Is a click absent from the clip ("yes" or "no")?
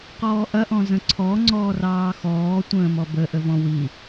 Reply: no